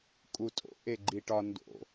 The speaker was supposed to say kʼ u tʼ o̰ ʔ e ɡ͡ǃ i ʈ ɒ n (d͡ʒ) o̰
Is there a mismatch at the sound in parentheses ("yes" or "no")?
yes